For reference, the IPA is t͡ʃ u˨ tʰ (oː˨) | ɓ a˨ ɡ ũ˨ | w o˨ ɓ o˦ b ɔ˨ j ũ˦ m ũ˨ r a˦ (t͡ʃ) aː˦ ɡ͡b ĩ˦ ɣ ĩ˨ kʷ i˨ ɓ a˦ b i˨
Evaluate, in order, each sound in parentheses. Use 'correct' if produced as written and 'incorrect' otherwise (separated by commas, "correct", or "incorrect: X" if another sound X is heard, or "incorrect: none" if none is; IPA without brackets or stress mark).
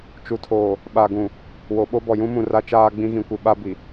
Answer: correct, correct